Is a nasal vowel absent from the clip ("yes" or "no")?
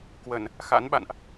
yes